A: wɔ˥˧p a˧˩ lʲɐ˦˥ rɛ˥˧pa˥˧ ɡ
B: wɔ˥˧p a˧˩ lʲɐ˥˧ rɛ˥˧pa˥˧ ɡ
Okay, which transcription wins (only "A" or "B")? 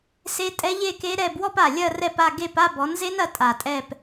B